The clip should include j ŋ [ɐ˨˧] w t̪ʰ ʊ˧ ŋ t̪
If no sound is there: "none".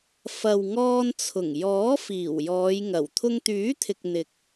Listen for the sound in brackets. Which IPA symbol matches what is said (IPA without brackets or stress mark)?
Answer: ɐ˨˩